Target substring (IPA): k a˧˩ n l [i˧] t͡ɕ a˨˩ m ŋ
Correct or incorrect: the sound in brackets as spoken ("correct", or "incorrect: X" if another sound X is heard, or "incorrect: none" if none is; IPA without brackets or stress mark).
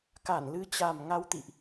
incorrect: ɨ˧